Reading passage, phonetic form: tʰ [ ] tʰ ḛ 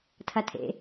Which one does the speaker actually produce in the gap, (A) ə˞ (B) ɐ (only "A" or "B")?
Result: B